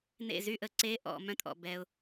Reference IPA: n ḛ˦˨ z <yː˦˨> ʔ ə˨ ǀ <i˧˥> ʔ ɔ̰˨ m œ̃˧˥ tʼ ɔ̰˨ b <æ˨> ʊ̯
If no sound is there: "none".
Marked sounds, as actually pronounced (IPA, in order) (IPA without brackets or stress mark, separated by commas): y˦˨, e˧˥, ɛ˨